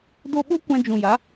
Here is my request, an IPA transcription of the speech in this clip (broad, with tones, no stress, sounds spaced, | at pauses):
d o˧ ɓ o˦ kʷ ã˧ d͡ʒ ũ˨ j a˨˦